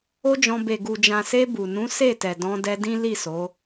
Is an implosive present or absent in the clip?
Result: absent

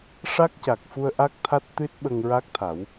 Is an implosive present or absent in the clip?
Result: present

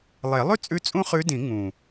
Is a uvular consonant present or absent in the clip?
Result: present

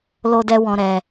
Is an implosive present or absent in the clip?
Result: absent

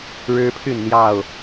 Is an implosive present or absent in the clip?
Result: absent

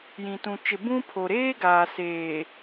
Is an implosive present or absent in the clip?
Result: absent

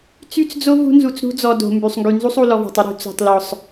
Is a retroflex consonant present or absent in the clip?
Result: absent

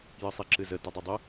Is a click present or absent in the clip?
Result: present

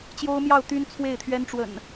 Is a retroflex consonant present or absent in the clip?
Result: present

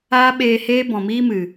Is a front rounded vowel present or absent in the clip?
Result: absent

